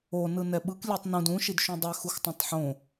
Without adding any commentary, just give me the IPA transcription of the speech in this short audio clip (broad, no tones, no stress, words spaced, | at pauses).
o nɯnɛɓɯk lʲetˤnũd ũ ʃidʃũdˤe xuxtˤõtˤħõ